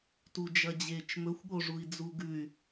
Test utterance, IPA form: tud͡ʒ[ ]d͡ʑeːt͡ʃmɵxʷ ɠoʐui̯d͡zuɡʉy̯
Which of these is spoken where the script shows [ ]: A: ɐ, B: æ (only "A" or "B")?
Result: A